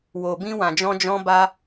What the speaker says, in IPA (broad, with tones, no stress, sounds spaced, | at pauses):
w o˨ b ĩ˧ w ã˨ d͡ʒ ɔ̃˧ d͡ʒ ɔ̃˧ b a˧